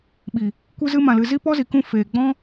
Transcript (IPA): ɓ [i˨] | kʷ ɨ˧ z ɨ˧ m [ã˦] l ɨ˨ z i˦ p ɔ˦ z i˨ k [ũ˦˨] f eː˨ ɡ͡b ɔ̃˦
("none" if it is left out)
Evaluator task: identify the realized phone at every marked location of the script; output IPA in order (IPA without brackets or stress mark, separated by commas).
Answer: i˨, ã˨, ũ˦˨